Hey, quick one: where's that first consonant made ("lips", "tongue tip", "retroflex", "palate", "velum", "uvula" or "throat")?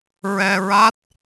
tongue tip